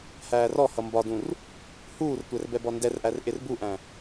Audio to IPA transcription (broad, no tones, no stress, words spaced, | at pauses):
hæːrɔhʌ mbɒdũr | huːrtʷɛr bɛbɔndɛrʔær ʔɪrbuʔæ̃